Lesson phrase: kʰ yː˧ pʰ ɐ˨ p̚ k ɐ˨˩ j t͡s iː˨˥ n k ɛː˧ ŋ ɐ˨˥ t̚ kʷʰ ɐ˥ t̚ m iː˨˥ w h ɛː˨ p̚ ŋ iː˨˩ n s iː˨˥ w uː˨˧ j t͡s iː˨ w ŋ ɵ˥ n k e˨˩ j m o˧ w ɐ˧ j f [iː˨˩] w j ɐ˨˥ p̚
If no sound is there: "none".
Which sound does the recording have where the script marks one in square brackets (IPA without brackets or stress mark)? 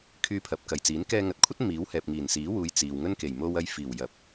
iː˨˩